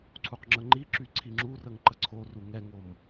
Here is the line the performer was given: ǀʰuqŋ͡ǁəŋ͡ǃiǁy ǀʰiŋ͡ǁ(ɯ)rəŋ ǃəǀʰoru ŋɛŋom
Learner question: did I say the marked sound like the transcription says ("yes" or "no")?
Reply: no